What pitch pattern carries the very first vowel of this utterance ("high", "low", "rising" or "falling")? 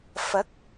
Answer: rising